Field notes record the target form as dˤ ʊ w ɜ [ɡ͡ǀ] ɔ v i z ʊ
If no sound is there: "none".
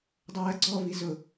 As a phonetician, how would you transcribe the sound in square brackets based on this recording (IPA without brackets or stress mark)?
ɡ͡ǀ